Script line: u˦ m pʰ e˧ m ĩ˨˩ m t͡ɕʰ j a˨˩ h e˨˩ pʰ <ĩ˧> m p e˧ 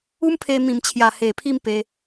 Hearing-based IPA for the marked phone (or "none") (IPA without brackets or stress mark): i˧